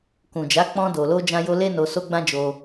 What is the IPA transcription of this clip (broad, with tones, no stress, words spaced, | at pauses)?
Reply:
kũ˨d͡ʒa˨˦ k͡pɔ̃˧do˨lo˧ d͡ʒã˧jo˧le˦ no˧so˦ɡ͡bã˦ d͡ʒo˧